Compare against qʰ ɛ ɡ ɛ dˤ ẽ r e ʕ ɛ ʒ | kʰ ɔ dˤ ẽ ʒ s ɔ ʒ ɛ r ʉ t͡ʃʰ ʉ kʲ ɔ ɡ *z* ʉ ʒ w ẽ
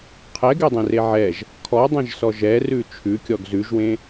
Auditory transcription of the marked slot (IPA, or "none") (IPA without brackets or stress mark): z